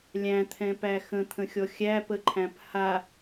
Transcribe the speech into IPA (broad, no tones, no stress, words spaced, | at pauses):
lʲæ̃t̪ʰɛ̃pæ xə̃t̪ʰə̃xʲɔ xʲæpəǃʰæ̃p ha